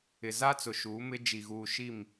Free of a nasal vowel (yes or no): yes